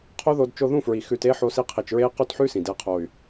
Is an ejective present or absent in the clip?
absent